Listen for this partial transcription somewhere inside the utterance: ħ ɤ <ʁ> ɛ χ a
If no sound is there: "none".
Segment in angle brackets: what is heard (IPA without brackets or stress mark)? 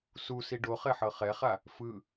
χ